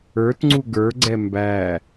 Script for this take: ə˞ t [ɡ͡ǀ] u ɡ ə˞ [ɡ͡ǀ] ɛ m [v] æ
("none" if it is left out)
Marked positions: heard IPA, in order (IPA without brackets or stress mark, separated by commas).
ŋ͡ǀ, ɡ͡ǀ, b